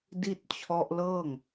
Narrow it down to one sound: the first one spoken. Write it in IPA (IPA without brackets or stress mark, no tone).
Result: d